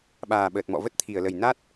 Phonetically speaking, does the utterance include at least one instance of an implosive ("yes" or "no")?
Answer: yes